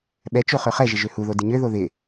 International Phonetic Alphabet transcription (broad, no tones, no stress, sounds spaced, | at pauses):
ɓ ɛ t͡ʃ o χ ø χ ɛ ʒ ɪ ʒ ø h u ð o d ɪ ɲ ø ð o ð ɪ